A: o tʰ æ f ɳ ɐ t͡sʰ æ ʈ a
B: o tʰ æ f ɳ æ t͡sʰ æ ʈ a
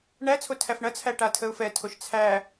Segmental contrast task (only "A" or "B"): A